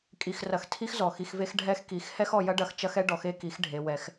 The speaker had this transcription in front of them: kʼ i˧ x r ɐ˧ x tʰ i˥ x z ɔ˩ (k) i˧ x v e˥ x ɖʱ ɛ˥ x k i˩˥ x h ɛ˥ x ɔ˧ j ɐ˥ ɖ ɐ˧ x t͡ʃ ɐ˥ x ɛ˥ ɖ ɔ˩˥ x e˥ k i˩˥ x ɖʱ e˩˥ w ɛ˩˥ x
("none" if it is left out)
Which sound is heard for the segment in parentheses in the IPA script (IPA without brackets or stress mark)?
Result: x